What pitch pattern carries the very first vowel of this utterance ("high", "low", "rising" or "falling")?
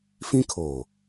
high